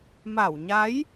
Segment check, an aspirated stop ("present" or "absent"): absent